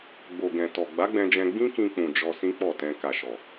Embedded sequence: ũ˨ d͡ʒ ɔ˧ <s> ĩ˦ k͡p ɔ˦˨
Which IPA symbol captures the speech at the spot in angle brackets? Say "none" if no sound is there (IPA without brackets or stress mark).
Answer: s